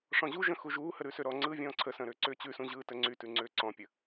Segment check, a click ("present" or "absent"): present